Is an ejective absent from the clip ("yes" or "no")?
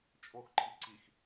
no